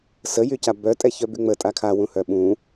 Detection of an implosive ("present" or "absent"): present